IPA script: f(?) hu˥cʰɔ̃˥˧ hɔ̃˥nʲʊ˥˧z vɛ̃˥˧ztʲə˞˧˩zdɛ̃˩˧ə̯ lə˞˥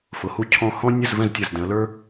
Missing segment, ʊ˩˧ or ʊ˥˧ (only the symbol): ʊ˩˧